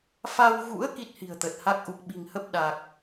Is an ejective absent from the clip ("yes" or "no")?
yes